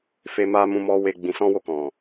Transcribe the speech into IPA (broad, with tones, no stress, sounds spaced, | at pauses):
f e˨ m a˨ m ũ˨ m ɔ˨ w e˨ ɡ͡b ĩ˨ s ɔ̃˧ w o˧ k ɔ̃˨